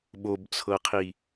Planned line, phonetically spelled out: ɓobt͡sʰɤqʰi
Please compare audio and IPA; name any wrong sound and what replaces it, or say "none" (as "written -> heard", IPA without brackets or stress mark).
none